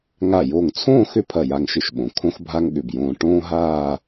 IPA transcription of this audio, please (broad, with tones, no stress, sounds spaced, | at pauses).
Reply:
ŋ a˧˩ j o˧˩ ŋ t͡sʰ õː˥˧ x ʏ˥ pʰ ɐ˧˩ j a˧ ŋ ʃ ʏ˧ ʃ ɓ õ˩˧ kʰ õ˥ x bʱ a˥ ŋ ɠ ʏ˧˩ b j õː˧ ʈ õː˥ ɦ aː˥˧